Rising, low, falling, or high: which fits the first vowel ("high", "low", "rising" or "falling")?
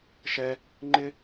high